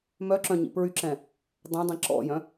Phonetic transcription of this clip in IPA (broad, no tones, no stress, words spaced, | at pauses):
mœǁœ̃ ɲḭpɹyǁɛ̃ | dˤɛ̃dˤĩ ǁɔ̰jœ̃